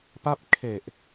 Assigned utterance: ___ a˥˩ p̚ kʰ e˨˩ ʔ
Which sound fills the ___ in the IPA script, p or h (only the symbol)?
p